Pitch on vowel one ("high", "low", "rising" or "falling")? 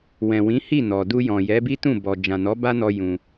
low